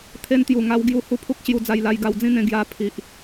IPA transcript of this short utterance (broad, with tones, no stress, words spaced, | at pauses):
t̪ʰe˧nt̪ju˨˩ŋa˧w ɡju˧hu˦pʰu˦k̚ ɕju˧d͡za˧jla˧j ɡa˧wd͡zĩ˦n̪ẽ˧ ɡja˧pʰi˨ʔ